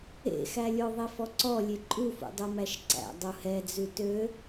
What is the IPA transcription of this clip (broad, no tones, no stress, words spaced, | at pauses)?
ḛxælʲo ðˤifɔǀɔlʲe ǃʼufṵ dˤumæʃǀæ̰ dˤuhɛd͡zʉ tø